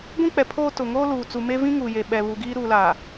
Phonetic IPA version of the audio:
ɡʷ ĩ˦ k͡p ɛ˨ pʰ oː˦ t ʊ˨ ŋ oː˦ l uː˨ t͡s u˨ m e˦ v ĩ˦ ŋ uː˨ j e˨ ɓ ɛ˨ β u˨ ɡ iː˦ ɾ uː˨ l a˨

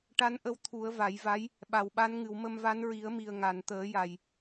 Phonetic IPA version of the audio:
ʈ a˧˥ n ʔ ə˧˥ w t̪ʰ u˨˩˦ ə̯ v a˨˩˦ j v a˧˥ j | ɓ a˨˩ w ɓ a˧˥ n ŋ ɨ˨˩˨ w m ə˧ m v a˧˥ n ɹ i˨˩˦ ə̯ m i˨˩ ə̯ ŋ a˨˩˨ n t̪ əː˨˩˦ j a˨˩ j

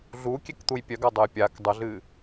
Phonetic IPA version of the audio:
ɮ u kʲ e k t̪ u j pʲ œ ɡ a dˤ ə j pʲ a k dˤ ə ɮ ɨ

